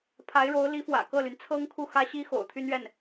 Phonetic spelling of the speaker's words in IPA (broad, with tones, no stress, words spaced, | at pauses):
pʰa˧˥ɪ̯ɻo˧˥ʊ̯li˧˥fwä̰˨˩ kɤ˥˩ly˩n t͡sʰɤ˥ŋkʰu˥˩xä˥ɕi˥ xo̰˨˩ʊ̯t̪ʰy˥nɥɛ˥˩n